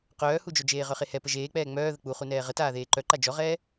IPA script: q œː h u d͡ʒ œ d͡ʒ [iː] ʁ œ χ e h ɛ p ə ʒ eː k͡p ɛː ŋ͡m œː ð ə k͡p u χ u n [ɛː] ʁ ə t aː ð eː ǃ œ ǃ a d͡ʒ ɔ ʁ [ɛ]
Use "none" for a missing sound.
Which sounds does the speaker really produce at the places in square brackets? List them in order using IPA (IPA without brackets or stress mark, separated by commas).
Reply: eː, ɛː, ɛː